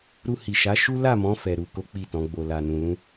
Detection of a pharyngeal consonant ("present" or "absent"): absent